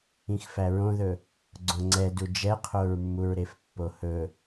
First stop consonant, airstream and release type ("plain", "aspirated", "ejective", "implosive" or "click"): click